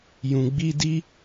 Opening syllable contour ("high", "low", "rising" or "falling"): low